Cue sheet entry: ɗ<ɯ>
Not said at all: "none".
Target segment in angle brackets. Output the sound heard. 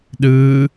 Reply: ɯ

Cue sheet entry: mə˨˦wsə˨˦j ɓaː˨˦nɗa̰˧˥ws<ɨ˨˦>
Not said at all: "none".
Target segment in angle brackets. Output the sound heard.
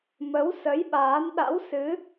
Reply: ɨ˨˦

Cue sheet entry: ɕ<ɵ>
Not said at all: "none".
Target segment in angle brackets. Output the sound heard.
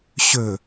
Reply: ɵ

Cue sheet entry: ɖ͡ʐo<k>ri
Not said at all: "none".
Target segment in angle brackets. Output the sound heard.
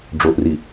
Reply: ʔ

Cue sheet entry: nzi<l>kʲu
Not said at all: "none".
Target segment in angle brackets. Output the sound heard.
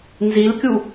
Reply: l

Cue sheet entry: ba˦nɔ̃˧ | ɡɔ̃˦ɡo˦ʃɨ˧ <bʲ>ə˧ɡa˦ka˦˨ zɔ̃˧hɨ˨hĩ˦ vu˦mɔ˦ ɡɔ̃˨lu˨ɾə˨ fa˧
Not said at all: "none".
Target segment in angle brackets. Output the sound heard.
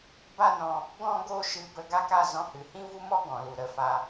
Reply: b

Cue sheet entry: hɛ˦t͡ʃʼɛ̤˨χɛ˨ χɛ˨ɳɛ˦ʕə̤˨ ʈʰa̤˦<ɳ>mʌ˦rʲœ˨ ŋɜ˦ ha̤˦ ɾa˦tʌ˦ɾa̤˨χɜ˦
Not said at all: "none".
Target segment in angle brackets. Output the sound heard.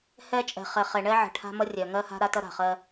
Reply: none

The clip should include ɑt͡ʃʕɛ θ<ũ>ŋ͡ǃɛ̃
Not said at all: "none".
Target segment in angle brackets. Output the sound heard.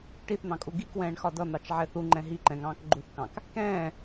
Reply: u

